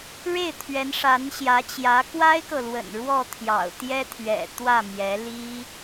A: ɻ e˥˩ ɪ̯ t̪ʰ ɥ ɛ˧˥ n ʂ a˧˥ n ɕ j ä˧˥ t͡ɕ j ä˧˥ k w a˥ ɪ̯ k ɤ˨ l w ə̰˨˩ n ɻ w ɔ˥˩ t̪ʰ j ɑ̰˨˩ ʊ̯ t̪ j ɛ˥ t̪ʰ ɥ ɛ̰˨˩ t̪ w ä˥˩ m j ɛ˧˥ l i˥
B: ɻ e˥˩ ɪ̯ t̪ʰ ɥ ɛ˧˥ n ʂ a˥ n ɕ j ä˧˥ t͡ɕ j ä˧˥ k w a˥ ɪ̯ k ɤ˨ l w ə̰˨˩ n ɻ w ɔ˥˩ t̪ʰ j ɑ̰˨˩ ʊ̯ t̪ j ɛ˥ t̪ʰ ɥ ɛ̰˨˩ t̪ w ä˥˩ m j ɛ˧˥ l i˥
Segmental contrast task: A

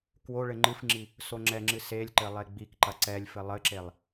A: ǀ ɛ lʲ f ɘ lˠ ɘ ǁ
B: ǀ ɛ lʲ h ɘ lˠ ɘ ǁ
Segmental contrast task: A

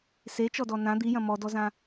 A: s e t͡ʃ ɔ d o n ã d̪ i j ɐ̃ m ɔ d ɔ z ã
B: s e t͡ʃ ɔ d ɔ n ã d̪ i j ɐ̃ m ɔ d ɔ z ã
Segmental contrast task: B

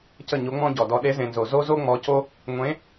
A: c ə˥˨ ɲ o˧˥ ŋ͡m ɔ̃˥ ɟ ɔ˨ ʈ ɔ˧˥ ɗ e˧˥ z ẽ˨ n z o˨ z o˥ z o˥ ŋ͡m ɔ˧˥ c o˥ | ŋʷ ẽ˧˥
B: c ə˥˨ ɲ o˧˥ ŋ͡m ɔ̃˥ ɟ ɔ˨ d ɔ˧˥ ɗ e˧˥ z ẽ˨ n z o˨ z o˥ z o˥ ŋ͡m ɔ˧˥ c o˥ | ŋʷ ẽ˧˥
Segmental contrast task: B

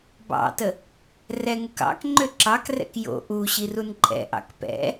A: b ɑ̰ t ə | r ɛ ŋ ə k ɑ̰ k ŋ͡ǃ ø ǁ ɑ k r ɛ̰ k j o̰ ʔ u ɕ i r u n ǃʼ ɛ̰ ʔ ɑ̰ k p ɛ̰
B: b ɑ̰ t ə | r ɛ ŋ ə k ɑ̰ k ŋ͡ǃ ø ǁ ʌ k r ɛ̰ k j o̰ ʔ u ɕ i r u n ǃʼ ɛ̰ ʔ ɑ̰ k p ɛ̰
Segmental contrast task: A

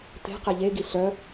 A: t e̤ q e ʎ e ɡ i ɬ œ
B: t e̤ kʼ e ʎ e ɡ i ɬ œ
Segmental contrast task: A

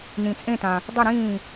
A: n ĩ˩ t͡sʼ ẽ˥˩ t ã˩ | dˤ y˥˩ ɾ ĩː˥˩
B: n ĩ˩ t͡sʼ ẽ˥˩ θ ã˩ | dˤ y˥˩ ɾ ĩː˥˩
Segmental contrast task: A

